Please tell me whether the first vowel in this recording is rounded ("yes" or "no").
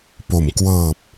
yes